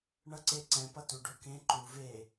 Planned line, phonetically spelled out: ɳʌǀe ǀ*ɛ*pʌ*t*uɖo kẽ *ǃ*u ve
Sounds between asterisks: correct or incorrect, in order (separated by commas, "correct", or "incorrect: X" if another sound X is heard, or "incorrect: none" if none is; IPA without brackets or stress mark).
incorrect: ɛ̃, correct, correct